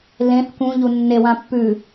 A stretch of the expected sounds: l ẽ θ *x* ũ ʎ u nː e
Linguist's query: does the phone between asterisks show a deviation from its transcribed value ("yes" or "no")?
yes